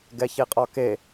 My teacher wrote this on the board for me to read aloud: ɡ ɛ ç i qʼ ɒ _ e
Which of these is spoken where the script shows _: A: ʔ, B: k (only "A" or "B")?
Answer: B